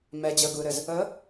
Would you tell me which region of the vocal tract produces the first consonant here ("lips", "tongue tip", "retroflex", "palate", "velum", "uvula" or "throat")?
lips